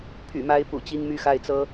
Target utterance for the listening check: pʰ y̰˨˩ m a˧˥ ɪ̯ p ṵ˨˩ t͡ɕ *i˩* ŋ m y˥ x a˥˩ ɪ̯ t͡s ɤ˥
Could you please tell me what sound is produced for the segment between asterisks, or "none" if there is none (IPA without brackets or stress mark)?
i˥